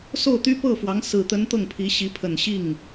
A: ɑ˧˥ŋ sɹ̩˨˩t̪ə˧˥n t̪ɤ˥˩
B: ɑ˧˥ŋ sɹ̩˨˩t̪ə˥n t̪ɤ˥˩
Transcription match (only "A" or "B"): A